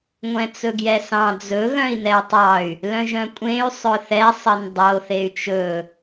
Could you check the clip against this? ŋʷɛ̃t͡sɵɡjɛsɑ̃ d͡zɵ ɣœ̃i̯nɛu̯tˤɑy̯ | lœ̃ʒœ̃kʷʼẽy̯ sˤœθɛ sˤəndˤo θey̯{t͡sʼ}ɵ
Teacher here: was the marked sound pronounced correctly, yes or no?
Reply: no